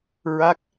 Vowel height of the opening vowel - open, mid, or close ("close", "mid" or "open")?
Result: open